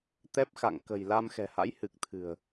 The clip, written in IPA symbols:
t̪ ɛ˦˥ p̚ x a̰˧˨ ŋ k ə̤˨˩ j l a˧ m x ɛ̤˨˩ h a̰˧˥ j h ɨ˨˩ k̚ t̪ʰ ɨ̤˨˩ ə̯

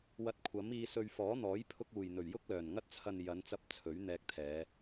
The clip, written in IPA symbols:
w ɐ˧ t̚ kʷʰ ɐ˨˥ m iː˧ s ɵ˧ ɥ f ɔː˨˥ n̪ ɔː˨˥ j pʰ ʊ˧ k̚ uː˨˩ j n̪ ɵ˨˩ ɥ j ʊ˥ k̚ l œː˨˩ n ŋ ɐ˧ t̚ t͡sʰ ɐ˨ n j ɐ˨˧ n t͡s ɐ˧ p̚ t͡sʰ ɵ˨˥ ɥ n̪ ɛː˧ k̚ t̪ʰ ɛː˨˧

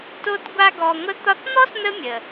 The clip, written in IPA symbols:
t o˥ t ɡʷ a˥ ɡ ɔ˦ ŋʷ ə˦ t̪ ɒ˦ t n̪ ɔ˥ s n̪ ə˦ mʲ ə˩

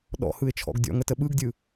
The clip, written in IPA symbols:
ɗ ɔ̰ h ɯ ɪ̯ t͡ʃʰ ɔ̰ ɡ dʲ ɔ̰ ŋ ə t ə ɓ ɯ ɡ dʲ ɯ

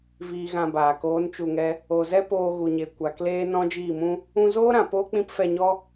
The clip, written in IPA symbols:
v iː˧ ɣ ã˧ b aː˨ k oː˨˦ n t͡ʃ u˨ ŋ ɛ˧ | o˨ z ɛ˦ p oː˧ ɣ u˨ ɲ e˨ kʷ a˨ k l eː˦ n ɔ̃˦ d͡ʒ iː˦˨ m ũ˦ | ũ˧ z oː˦ ɾ ã˨ p oː˦ k͡p ĩ˦ p f ɛ˧ ɲ ɔ˦

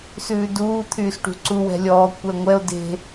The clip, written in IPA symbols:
s ʉː d uː t̪ʰ yː s ʈ ṳ ǀ u w ɛ̤ lʲ ɔː kʷ ɛ ŋʷ ɛ o̯ d e̤

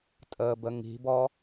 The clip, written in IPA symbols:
tʼ əː b ə ŋ i̤ b ɔ

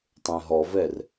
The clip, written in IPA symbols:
tˤ ẽ ɦ ɔ v ɛ r

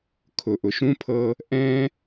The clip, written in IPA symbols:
kʰ ʊ˨ ʔ ʊ˨ ʃ ũ˦ pʰ ɤ˦ | ʔ ɛ̃˦

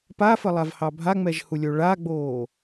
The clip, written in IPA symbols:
p a f ə lˠ a v h ɑ bʱ a ŋ͡m ɛ ʒ h u lʲ o ɭ a ɡ͡b oː

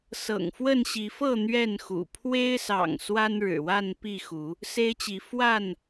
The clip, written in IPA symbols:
s ɤ̰˨˩ ŋ f w ə˥˨ n ɕ i˨˦ f ɤ˥˨ n̪ ɥ ɛ˥˨ n x ṵ˨˩ pʰ w e˦ ɪ̯ s ɑ̰˨˩ ŋ s w a˦ n ɻ ɻ̩˨˩ w a˥˨ n p i˥˨ x u˨˦ | s e˦ ɪ̯ t͡ɕ i˨˦ f w a˥˨ n

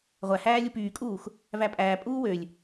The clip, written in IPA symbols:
ʁʷ æ h æː lʲ u p yː kʼ uː x | v æ pʼ æː pʼ uː w ø lʲ

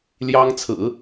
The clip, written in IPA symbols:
l j ɑ˥ ŋ t͡sʰ ɹ̩˨˩˦

